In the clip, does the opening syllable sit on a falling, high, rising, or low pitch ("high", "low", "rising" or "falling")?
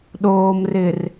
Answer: low